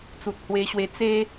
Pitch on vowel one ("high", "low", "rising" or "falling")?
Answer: low